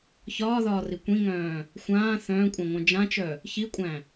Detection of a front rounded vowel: present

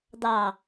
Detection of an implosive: absent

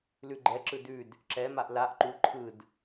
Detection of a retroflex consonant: absent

